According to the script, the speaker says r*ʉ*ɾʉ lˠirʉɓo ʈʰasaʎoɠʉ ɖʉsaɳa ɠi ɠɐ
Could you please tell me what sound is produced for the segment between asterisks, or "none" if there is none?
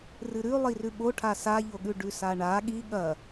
ɨ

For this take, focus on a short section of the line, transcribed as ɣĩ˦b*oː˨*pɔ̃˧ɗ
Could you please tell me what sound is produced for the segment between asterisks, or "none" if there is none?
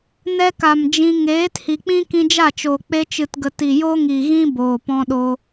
oː˨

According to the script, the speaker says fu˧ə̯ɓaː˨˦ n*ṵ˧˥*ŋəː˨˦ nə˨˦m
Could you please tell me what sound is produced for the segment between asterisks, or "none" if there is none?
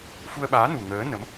u˨˩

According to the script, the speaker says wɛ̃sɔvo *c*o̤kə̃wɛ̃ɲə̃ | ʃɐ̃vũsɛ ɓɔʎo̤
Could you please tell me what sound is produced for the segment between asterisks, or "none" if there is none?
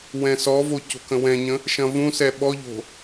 c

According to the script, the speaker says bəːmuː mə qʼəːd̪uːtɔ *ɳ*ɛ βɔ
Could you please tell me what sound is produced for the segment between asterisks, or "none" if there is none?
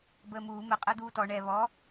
ɳ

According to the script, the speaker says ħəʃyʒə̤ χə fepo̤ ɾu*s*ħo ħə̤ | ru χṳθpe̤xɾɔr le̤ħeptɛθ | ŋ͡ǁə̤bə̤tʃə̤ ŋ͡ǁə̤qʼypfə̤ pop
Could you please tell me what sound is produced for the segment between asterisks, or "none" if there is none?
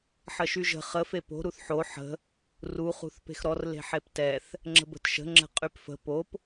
θ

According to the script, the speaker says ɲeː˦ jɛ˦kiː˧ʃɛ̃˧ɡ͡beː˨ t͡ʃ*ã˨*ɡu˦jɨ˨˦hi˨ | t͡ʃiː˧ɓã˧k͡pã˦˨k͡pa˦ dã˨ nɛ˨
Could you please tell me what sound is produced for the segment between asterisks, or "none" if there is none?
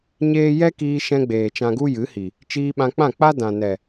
ã˧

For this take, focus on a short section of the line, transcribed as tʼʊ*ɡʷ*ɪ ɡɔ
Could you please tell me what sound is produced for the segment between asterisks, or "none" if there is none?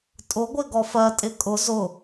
ɡʷ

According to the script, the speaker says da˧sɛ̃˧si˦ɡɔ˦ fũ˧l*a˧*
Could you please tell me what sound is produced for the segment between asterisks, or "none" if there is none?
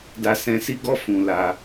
a˧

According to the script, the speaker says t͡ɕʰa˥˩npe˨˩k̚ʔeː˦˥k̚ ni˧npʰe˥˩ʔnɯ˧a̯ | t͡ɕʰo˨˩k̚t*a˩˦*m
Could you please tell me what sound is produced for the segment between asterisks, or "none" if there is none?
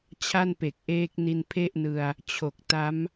a˦˥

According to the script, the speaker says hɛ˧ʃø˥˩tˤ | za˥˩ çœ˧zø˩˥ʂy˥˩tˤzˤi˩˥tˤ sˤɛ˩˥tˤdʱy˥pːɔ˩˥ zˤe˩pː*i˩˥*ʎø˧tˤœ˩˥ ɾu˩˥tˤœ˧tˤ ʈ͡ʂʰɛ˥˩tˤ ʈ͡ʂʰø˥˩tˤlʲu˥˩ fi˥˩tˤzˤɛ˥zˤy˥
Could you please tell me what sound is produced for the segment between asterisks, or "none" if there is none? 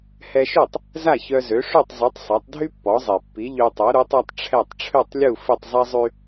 i˩˥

